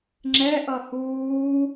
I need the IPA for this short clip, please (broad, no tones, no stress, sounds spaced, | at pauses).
ŋ͡ǁ ɛ ʔ ʌ h uː